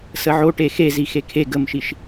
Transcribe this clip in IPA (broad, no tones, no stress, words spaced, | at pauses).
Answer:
səʕoʈe xezi xekʰeɡ əmʃiʃ